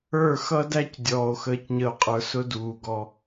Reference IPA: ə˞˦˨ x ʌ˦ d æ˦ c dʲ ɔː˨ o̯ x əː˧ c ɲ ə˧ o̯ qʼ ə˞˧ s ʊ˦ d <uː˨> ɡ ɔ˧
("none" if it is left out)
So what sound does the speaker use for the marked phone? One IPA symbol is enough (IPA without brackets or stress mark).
uː˨